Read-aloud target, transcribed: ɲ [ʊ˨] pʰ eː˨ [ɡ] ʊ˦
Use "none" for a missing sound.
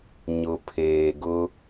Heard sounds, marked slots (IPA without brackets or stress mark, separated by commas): ʊ˨, ɡ